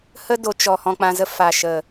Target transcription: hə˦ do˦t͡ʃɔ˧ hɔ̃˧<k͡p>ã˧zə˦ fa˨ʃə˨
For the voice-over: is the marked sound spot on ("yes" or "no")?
yes